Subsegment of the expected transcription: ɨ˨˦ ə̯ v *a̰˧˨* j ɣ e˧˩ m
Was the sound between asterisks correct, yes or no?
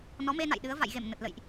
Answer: yes